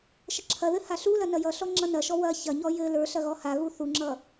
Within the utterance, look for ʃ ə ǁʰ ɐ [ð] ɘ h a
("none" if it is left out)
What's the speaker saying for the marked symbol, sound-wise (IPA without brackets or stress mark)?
ð